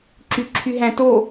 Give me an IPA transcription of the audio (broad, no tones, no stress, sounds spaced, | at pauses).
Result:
ǁ y ǁʰ y ɦ æ̃ t o